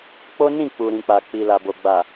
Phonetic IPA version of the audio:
k͡po˦nĩ˦˨ k͡pu˨ɾĩ˨k͡pa˨ k͡pi˨la˨bo˨ ɡ͡ba˨

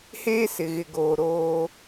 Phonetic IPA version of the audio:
heː˦sɪ˨ɣɪ˨ɡoː˨ ɾoː˦

